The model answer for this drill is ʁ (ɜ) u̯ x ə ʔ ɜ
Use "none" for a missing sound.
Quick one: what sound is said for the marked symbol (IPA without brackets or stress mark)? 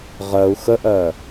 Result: ɜ